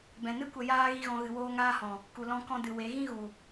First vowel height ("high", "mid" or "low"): mid